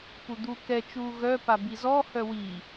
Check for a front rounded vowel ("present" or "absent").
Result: present